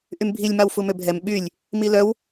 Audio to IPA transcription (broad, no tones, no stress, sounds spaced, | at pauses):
ʔ y m bʱ i lʲ m a w f u m ø bʱ ɛ m ɓ y lʲ | m i l œ w